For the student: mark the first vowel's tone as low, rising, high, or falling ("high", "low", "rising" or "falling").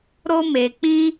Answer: high